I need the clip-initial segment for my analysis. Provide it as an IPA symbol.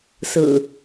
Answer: s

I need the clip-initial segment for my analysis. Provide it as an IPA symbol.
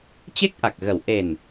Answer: t͡ɕ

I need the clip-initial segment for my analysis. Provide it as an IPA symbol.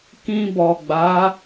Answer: k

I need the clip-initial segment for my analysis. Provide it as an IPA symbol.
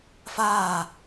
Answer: f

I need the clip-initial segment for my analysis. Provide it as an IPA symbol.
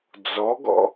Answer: d͡z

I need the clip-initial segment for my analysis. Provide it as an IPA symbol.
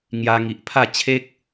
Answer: ŋ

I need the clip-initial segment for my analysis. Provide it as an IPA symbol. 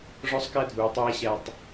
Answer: ʐ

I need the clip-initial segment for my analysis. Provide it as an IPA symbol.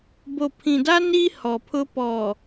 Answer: b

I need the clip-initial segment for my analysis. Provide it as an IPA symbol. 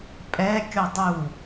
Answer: pʼ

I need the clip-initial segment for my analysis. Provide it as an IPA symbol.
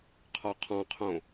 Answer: qʰ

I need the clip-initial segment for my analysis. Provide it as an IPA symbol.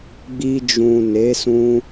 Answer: ɡ͡b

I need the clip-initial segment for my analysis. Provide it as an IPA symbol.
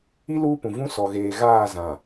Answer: i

